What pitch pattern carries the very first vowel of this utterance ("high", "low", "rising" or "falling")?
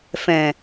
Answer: low